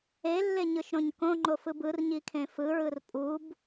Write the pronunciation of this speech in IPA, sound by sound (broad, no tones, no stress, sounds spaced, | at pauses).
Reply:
e lː e ɲ ɯ ʃ ɾ õ ɲ k õ ŋ͡ǃ o f ɯ b ɯ r ɲ i kʰ ẽ f ɯ ɹ ɯ r pʼ u b